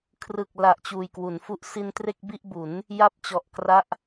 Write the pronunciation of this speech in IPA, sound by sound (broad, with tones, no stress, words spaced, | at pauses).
kʰrɯ˨˩k̚la˨˩ʔ t͡ɕuː˨˩jkwu˩˦nfu˦˥ʔ si˧n tre˥˩k̚bi˥˩ʔbu˩˦n | ja˥˩p̚t͡ɕɔ˨˩ʔkra˥˩ʔ